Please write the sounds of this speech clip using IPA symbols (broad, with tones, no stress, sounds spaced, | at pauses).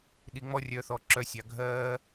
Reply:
ɗ i˩˧ ŋ͡m ɔ˧ rʲ œ˩˧ θ ɔ˩ ǁ œ˩˧ sʲ ɑ˩ ɡʱ ɜː˧